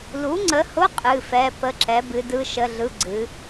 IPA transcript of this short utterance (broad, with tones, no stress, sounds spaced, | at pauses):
l u˨˥ ŋ͡ǀ ə˨˥ h ʊ˧˥˧ qʼ ɨ˧˥˧ f ɛ˧˥˧ p ə˧˥˧ ǁ ɛ˨˥ b ɨ˨˥ d ɯ˧˥˧ ʃ ə˧˥˧ ɮ ɯ˧˥˧ ɡ͡ǀ ɨ˨˥